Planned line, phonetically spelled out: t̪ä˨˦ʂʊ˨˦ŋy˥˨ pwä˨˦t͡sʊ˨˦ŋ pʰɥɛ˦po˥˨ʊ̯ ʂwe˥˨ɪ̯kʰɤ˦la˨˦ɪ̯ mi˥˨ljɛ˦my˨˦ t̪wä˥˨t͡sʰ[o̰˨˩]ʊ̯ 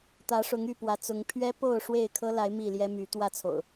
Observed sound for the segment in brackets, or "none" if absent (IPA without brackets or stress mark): o̰˨˩